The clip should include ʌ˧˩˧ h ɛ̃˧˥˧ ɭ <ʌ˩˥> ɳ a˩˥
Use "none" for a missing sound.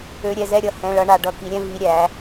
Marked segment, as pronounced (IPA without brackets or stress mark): ʌ˦˥